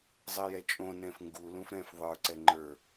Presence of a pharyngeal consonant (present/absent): absent